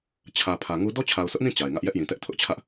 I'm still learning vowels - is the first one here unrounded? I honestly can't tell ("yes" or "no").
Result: yes